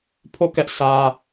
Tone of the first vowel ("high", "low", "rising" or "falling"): falling